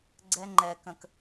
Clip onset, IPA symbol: ɡ͡ǀ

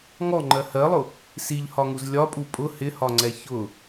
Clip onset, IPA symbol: ŋ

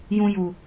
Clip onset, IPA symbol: j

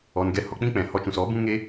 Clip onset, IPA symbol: ɔ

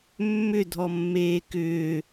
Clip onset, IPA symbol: mː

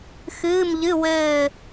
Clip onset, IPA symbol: x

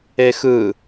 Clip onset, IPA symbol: e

